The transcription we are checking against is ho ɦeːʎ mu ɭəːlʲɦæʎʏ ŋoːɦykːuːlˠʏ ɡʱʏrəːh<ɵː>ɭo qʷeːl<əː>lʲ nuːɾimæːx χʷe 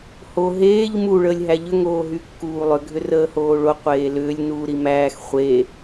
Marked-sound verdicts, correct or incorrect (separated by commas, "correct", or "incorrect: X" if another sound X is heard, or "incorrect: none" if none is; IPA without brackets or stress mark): incorrect: oː, incorrect: ʏː